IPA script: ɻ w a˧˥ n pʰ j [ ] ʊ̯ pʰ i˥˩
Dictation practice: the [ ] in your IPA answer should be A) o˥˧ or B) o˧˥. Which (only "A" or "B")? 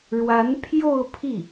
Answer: A